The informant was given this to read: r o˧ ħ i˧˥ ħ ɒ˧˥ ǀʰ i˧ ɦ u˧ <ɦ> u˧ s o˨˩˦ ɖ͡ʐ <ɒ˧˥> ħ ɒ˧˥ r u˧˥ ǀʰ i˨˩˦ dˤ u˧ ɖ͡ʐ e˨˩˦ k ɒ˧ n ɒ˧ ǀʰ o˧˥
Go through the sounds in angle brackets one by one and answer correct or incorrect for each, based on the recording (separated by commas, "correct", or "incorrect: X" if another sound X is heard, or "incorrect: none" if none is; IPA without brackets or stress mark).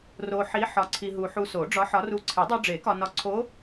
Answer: incorrect: ħ, correct